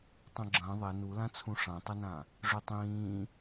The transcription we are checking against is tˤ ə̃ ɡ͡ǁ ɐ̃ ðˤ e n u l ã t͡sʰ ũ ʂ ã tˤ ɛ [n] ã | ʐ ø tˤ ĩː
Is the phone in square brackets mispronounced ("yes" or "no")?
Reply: no